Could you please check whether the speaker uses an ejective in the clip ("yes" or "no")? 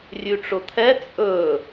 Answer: yes